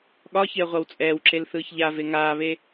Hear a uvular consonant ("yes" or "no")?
yes